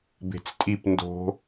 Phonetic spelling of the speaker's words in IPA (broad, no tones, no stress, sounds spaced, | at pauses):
b e̤ t͡s tʼ i p n d o̤